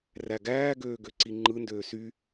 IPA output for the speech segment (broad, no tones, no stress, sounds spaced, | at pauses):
r æ ɡ æː ɡ øː ɡ ø ǀ i ŋ͡ǃ ɯ n d øː s y